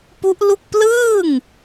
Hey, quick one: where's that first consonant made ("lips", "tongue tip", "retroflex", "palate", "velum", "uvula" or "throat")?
lips